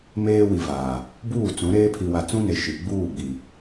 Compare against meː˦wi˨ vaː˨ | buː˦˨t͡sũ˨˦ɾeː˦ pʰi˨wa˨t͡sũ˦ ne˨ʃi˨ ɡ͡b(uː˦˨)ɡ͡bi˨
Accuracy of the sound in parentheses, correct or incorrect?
correct